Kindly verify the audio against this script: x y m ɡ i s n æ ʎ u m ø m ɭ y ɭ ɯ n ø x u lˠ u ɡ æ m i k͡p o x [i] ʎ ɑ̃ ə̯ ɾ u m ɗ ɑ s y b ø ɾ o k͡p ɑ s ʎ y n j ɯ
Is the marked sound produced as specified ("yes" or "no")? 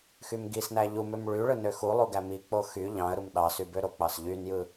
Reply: no